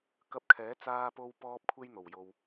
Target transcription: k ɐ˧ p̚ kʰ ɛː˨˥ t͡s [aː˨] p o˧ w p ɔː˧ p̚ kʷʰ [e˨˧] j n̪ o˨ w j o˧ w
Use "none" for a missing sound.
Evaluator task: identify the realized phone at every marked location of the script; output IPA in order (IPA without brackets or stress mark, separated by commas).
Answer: aː˧, e˥